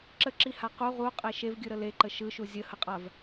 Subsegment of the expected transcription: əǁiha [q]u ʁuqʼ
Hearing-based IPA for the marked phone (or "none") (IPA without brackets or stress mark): q